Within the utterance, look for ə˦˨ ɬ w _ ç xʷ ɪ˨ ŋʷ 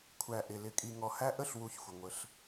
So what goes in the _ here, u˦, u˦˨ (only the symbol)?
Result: u˦˨